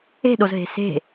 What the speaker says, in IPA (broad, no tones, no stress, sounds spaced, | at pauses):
e̤ ɗ o z ɦ e̤ s e̤